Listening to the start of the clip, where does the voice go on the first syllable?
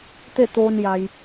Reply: falling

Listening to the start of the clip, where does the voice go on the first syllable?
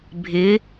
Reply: rising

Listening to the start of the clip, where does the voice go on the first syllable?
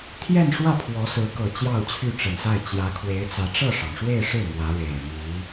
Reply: falling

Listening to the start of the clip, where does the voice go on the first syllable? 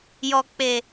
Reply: low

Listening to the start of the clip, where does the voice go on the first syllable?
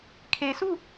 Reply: low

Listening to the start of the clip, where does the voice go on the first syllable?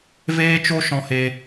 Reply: high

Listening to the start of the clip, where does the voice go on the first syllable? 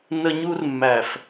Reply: high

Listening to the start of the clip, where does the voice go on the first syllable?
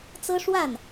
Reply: high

